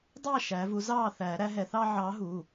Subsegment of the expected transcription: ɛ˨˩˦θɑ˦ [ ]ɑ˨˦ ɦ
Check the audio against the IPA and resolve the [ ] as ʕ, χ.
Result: ʕ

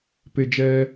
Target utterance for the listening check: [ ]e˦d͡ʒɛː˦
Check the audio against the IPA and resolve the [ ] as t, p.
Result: p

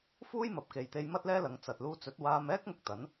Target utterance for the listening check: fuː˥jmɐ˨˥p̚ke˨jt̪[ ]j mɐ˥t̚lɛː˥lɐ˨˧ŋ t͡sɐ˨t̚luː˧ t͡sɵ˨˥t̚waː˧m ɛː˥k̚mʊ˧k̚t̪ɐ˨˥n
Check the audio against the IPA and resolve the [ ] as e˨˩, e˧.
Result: e˧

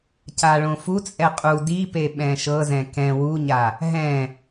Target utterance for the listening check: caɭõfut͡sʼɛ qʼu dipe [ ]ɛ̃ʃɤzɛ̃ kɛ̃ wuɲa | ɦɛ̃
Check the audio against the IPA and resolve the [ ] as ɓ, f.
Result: ɓ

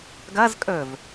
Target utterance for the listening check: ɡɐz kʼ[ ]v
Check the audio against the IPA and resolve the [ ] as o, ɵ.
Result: ɵ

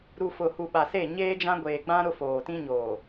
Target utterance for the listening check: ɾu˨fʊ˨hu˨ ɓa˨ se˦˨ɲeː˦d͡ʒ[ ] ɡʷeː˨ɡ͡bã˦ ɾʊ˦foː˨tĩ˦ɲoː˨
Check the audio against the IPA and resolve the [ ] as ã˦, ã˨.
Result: ã˦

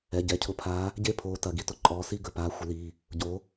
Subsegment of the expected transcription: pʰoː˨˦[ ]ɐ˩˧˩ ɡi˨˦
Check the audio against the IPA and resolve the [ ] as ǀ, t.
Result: t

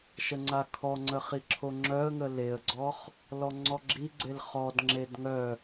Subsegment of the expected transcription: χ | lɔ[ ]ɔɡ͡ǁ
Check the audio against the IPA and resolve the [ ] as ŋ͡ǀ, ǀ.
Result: ŋ͡ǀ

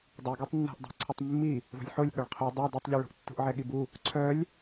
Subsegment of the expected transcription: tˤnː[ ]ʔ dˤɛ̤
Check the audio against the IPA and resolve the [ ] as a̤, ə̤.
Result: a̤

